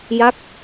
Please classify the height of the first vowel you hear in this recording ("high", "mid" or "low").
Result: low